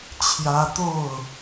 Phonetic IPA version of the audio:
t͡ɕʰ j ä˦ t̪ o˥˨ ʊ̯

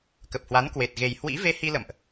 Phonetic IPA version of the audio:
k ə˨˩ p̚ h w a˨˦ n k w e˨˩ t̚ ɣ e˨˩ j h w ḭ˧˥ v e˧ h i˧ l ə̰˧˨ m ʔ

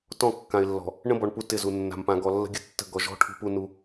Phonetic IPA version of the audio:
t ɔ̃˦˨ kː ã˨ ɪ̯ lː ɔ̤˨ | ɳ ə̃˦ b ɔ˨ ɳ p u˦ t ɪ˦˨ z u˨ nː a̤˨ m p ã˨ ɡ ɔ˨ lː ə̤˦ ɡʲ ə˦ tː ə̤˦˨ ɡ ɔ˨ ʒ ɔ̤˦ ʈʰ ṳ˦ p u˦ n u˦

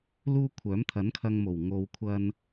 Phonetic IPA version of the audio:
l uː˥ kʷʰ œː˨˥ m t̪ʰ ɐ˨˥ n kʰ ɐ˧ ŋ m o˨˩ w ŋ o˨ w kʷʰ ɐ˧ n

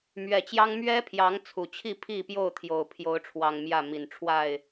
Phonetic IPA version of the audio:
m ɥ ɛ˨˩ t͡ɕ j ɑ˦ ŋ m ɥ ɛ˦ pʰ j ɑ˨˦ ŋ t͡sʰ u˨˩ t͡ɕʰ i˥˨ pʰ i˥˨ p j o˥˨ ʊ̯ t̪ʰ j o˨˩ ʊ̯ pʰ j o˨˦ ʊ̯ ʈ͡ʂʰ w ɑ˨˩ ŋ m j ä˥˨ m i˨˩ n ʈ͡ʂʰ w a˥˨ ɪ̯

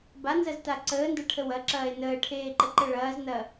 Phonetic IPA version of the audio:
b a n z ɐ z t a ǀ əː n d ɐ ʈʰ ə w ɐ ǁ ɐː e̯ n əː ʈʰ eː ǃ ə ǃ ə ɭ ɐː z n ɐ

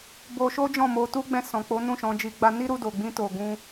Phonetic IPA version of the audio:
b o˧ ʃ o˦ d͡ʒ ɔ̃˦˨ m o˧ t u˦ ɡ͡b ɛ̃˧ s ɔ̃˨ k͡p o˨˦ n ũ˦˨ ʃ ɔ̃˧ d͡ʒ i˧ ɡ͡b a˧ n i˦ ɾ u˧ d o˨ ɡ͡b ĩ˧ t o˨ ɡ ũ˧

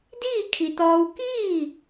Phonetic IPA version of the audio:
d iː˥˨ kʰ i˩ t̪ ɔː˧ w k iː˥˨

